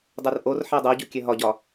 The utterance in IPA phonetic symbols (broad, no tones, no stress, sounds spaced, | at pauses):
dˤ ɛ r ʔ o r ħ ɛ dˤ o ɟ u kʲ ɛ ɦ ɒ ɟ ɒ